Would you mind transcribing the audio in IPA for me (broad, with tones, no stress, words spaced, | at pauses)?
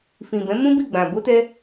fĩ˨ bɛ̃˨˦mũ˦bi˦˨ɡ͡bã˨ bo˧tɛ˧